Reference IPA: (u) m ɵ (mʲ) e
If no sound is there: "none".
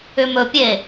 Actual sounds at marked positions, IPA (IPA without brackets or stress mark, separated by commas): ʏ, pʲ